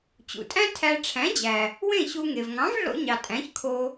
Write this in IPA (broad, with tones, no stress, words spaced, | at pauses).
t͡ɕṵ˩tʼæ̃˥tʰæ˧ ʈ͡ʂʰæ̃˩˥d͡ʑæ˩ | wẽ˥˩ɕu˧ŋe˩v ŋɑ̃˩˥vɮo̰˧ɲɑ˩ tʼæ̃˩˥çkʰo˧